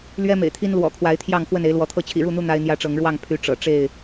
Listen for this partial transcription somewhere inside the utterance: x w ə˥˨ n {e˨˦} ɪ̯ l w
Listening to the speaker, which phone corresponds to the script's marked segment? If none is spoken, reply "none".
e˨˦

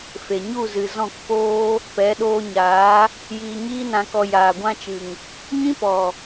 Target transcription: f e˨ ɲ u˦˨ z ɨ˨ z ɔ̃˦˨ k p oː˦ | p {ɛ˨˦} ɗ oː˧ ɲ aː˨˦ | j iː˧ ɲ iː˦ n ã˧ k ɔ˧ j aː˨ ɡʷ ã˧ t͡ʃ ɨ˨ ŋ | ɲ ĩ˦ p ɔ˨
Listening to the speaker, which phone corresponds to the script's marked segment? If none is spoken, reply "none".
ɛ˨˦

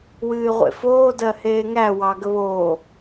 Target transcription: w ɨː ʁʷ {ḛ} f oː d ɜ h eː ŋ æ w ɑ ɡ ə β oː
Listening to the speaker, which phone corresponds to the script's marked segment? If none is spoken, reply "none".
ḛ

